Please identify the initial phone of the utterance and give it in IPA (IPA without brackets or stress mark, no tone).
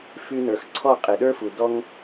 f